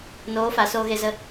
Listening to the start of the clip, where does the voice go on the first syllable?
rising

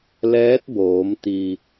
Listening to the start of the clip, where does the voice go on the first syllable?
rising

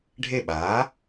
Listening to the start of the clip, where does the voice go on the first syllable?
falling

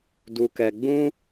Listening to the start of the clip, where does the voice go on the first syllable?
low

